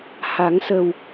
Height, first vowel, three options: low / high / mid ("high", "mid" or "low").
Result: low